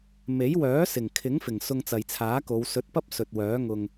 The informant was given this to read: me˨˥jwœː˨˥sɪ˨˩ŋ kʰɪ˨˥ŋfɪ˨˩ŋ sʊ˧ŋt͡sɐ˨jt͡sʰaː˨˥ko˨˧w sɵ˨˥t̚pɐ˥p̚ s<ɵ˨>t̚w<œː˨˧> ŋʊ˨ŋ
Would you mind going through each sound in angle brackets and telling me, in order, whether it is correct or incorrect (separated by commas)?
correct, incorrect